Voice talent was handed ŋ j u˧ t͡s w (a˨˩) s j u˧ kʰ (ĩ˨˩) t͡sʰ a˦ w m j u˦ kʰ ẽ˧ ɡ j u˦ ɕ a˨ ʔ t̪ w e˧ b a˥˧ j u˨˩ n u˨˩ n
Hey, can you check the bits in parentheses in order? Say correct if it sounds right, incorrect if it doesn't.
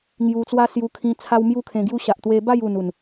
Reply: incorrect: a˦, incorrect: ĩ˧

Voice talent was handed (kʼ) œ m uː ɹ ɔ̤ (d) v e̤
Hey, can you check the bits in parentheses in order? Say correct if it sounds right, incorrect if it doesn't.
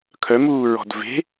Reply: incorrect: kʰ, correct

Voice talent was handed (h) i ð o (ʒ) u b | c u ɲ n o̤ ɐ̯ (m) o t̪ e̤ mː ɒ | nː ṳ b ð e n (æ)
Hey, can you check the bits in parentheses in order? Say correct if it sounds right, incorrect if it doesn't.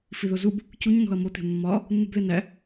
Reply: incorrect: f, incorrect: z, correct, correct

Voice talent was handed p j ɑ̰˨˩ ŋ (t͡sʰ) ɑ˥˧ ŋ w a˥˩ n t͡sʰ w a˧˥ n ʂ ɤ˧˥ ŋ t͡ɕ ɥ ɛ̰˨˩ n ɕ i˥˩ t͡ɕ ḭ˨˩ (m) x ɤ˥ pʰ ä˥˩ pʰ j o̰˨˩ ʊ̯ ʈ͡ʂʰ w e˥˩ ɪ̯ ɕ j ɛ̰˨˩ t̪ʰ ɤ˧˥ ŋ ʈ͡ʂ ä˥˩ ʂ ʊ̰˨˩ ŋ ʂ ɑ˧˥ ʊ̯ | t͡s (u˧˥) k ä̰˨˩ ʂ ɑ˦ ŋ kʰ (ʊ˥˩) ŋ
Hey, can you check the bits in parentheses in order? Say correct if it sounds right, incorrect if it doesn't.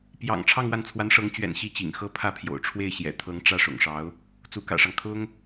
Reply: incorrect: ʈ͡ʂʰ, incorrect: ŋ, correct, incorrect: ʊ˥

